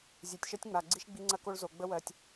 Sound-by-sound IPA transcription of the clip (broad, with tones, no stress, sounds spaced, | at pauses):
zʲ e˨ tʲ ʃ ɜ˦ tʲ ŋ͡m a˨ ɡ͡ǀ i˦ ʃ ɡ͡b i˦ ŋ͡ǀ ɐ˦ k o˦ ɭ z o˨ ɡ͡b ə˦ w ɜ˨ tʲ